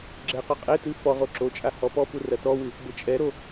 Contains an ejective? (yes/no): yes